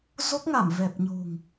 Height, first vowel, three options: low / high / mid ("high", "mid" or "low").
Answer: mid